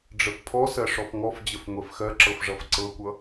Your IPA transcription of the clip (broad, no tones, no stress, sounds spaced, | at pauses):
ɖ͡ʐ ə f pʰ ɔ s ɜ ʂ ɔ f ŋ ɔ f d͡ʑ ə f ŋʷ ɛ f x ɜ ǁ ɤ f ʐ ʌ f ǀ ɤ kʷ ʌ